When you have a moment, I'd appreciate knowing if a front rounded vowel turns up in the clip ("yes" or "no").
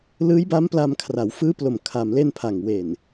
no